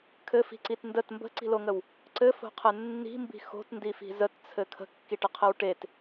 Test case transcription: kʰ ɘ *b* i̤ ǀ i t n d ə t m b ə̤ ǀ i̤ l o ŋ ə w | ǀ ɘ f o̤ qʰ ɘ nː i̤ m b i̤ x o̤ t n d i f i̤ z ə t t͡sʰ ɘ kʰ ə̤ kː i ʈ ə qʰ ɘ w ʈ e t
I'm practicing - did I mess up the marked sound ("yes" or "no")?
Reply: yes